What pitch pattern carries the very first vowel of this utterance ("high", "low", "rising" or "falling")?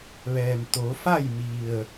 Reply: low